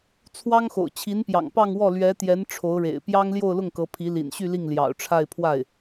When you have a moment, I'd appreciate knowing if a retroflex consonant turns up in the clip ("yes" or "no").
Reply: yes